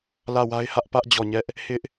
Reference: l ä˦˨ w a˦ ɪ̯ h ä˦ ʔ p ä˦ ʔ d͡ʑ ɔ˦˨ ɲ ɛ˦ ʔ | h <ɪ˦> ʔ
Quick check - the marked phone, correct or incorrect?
correct